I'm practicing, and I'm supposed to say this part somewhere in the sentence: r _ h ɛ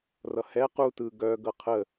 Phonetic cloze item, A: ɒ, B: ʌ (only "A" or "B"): B